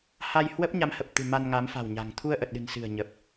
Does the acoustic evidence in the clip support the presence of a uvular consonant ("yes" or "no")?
no